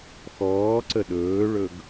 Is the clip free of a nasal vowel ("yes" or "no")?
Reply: yes